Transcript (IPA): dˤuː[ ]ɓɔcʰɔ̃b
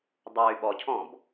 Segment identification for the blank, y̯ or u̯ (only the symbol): y̯